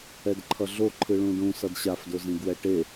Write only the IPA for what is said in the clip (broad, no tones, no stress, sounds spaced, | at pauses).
ɛ d ǃʰ ʌ ɮ o ǃʰ ɯ ɭ ũ ɖ ũ s ʌ d ɕ a f d o z ĩ ɡ w ɛ ʈ e